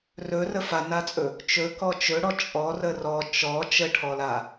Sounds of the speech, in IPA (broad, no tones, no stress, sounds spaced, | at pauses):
r ɵ r ə f a n a t͡sʼ ɵ | t͡ʃ ɵ k ɔ t͡ʃ ɵ ɽ ɔ t͡ʃʼ ɔ r ə r ɔ t͡ʃ ɔ t͡ʃ ə ʈʰ ɔ l a